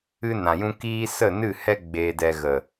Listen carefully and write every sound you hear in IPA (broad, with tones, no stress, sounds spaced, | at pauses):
ɨ˧ n ã˨ j ũ˧ k iː˧ s ə˦˨ n ɨ˦˨ h ɛ˦ ɡ͡b e˧ d ɛ˧ ɣ ə˨